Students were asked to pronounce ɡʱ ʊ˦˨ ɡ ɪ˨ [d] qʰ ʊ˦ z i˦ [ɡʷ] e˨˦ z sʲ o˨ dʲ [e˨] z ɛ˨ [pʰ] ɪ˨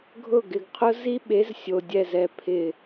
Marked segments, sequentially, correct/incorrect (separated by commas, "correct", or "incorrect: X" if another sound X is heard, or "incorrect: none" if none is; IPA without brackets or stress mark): incorrect: ɡ, incorrect: ɓ, incorrect: ɛ˨, correct